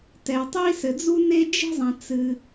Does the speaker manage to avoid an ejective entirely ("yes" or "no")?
yes